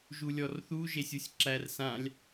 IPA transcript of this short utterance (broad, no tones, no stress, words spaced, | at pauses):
ʒulʲɔrθu ʒesʲusʲǁær sãlʲ